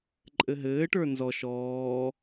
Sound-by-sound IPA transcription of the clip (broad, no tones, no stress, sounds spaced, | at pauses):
ǃʼ ɘ ɦ ɘː ʈ ə˞ n z ɔ ʃ ɔː